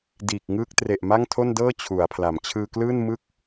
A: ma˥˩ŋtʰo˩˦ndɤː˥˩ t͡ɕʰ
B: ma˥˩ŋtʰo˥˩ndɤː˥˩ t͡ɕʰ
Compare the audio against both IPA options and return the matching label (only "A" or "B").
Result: B